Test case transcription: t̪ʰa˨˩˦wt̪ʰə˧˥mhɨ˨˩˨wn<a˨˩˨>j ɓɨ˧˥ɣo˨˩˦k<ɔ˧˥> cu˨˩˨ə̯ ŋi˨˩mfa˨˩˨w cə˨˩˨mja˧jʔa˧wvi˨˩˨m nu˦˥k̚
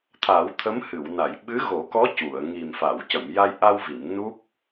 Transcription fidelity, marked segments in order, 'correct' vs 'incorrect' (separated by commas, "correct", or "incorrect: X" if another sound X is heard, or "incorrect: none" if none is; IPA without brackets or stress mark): correct, correct